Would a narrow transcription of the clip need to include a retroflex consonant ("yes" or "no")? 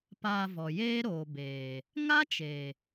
no